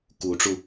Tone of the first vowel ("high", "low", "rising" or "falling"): rising